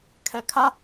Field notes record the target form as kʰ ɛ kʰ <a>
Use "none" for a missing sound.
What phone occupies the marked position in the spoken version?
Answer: a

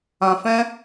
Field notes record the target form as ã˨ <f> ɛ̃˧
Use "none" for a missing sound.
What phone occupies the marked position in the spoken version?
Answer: f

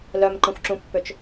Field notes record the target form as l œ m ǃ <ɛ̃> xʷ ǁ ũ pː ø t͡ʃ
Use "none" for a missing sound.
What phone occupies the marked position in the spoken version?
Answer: ə̃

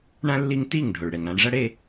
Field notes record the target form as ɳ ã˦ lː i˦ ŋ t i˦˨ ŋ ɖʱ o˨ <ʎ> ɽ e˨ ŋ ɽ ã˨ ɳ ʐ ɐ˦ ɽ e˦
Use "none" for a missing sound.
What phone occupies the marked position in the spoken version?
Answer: ɭ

